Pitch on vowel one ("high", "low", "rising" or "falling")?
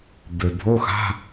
low